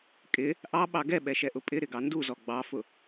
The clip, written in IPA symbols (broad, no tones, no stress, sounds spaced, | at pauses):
kʼ ɪ | ʔ ɑ ɓ ɑ ɡ ɛ ɓ ɛ ʃ ɛ ʔ ʊ pʼ ɪ ɾ ɪ ɡ ɑ n d u z ɔ ɡ͡b ɑ f ʊ